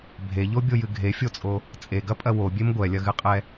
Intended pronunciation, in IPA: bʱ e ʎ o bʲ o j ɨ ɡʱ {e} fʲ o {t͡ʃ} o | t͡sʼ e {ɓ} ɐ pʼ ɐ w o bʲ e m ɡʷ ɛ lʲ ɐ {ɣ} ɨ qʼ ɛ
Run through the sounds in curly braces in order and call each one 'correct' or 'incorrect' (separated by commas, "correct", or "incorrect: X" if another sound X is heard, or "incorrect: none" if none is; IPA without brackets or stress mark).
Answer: correct, incorrect: t͡sʼ, incorrect: ɡ, correct